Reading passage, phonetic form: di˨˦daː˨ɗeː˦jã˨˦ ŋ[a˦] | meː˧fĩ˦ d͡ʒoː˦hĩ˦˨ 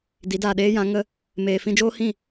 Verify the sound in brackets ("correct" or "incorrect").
incorrect